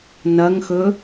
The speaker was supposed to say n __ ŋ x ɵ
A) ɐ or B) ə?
A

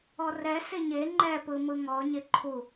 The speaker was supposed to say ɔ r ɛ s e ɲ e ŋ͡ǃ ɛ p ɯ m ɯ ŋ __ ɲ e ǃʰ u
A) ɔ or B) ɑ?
A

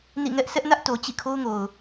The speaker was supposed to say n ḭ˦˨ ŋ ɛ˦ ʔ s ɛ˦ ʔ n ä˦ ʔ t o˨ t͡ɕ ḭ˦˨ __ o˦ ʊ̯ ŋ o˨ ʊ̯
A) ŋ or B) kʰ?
B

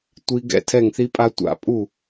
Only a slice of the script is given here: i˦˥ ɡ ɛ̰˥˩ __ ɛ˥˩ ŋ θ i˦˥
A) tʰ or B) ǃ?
A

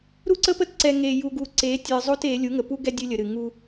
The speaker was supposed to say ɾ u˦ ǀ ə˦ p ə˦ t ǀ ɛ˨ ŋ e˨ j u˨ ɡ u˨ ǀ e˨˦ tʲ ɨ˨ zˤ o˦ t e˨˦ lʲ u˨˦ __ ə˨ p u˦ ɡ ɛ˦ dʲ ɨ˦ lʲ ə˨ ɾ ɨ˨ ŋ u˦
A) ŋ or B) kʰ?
A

